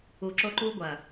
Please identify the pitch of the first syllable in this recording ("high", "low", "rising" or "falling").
low